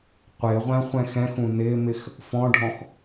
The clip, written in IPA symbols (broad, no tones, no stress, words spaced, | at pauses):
qʷɪːʁʷæ̃ χʷɛ̃xɛ̃xũ nɪːmɪx | fɔ̃ɖʱɔ̃x